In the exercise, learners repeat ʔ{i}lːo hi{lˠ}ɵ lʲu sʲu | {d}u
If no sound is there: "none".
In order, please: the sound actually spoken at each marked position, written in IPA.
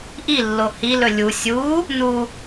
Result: i, l, n

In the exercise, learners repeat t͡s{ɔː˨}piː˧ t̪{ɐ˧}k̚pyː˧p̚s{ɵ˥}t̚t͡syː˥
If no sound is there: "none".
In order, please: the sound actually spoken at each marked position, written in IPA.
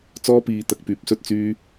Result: ɔː˥, ɐ˧, ɵ˥

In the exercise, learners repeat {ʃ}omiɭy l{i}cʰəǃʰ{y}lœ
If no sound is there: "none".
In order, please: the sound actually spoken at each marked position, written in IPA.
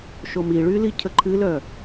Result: ʃ, i, ɨ

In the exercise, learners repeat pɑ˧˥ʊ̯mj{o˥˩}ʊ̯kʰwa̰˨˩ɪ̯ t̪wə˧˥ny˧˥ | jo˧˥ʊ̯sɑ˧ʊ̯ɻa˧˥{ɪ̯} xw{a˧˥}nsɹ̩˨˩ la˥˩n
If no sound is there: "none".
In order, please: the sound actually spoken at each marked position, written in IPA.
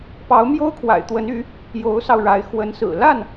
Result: o˥, ɪ̯, ə˧˥

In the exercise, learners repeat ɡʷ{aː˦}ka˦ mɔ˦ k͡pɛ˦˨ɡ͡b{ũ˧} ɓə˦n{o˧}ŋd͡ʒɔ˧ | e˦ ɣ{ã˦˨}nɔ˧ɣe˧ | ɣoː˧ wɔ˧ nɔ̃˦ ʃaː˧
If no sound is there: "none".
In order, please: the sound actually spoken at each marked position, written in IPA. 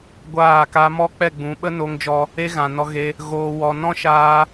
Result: aː˦˨, ũ˨˦, o˧, ã˨

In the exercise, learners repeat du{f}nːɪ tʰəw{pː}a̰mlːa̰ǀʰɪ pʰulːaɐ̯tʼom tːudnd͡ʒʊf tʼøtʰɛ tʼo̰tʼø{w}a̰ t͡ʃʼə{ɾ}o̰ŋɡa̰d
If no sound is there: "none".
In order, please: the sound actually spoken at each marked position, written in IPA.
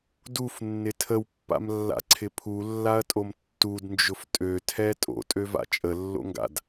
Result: f, pː, v, lː

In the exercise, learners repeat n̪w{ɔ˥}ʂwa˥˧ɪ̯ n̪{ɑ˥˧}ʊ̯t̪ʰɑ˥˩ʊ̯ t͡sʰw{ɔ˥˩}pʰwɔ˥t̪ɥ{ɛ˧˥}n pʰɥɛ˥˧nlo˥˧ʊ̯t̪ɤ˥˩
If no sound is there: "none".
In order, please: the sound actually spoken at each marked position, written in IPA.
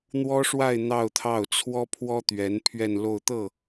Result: ɔ˥, ɑ˥˧, ɔ˥, ɛ˧˥

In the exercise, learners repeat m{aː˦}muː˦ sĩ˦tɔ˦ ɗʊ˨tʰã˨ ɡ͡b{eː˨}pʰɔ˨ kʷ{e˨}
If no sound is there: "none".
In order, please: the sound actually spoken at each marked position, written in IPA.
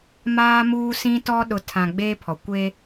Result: aː˦, eː˦, e˦

